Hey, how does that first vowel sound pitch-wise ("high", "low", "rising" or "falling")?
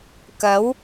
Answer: rising